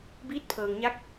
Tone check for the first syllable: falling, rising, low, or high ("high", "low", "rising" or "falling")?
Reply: rising